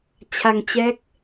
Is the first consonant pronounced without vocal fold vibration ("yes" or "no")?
yes